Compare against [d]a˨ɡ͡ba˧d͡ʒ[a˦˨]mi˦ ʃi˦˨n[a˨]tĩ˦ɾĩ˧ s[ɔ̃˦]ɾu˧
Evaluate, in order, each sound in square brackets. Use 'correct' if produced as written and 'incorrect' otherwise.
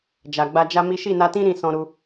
incorrect: d͡ʒ, incorrect: a˦, incorrect: a˧, incorrect: ɔ̃˧

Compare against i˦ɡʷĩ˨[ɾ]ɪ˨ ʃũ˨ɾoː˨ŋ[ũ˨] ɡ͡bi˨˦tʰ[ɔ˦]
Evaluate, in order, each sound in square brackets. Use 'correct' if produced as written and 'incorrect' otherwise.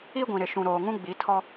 correct, incorrect: ũ˦, correct

